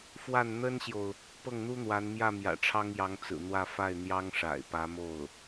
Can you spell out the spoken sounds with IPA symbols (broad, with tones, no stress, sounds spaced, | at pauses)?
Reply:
f w a˥˩ n n̪ ə˥ n ɕ j o˨ ʊ̯ | p ɤ˥˩ ŋ n̪ u˥ n̪ w a˧˥ n m j ä˥˩ m j ä̰˨˩ ʈ͡ʂʰ ɑ˥ ŋ j ɑ˧˥ ŋ t͡s ɹ̩˨˩ n̪ w ä˥˧ f a˥˩ ɪ̯ n̪ j ɑ˥ ŋ ʂ a̰˨˩ ɪ̯ p ä˧˥ m o˥˩ ʊ̯